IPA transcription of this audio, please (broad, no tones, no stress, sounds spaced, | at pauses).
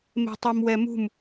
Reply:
m e̤ tˤ o m w ɛ m ṳ m